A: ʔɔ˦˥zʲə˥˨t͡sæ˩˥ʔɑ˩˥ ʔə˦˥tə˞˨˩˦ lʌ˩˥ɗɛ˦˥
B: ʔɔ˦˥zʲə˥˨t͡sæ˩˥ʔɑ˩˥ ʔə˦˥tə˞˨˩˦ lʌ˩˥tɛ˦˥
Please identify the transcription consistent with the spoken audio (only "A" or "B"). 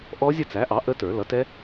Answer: B